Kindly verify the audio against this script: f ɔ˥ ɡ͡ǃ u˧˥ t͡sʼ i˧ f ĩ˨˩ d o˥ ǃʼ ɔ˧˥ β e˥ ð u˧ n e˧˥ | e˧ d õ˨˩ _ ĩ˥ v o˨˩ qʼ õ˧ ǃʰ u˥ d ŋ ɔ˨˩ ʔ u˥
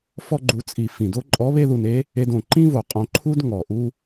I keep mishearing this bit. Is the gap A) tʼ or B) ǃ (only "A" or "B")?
B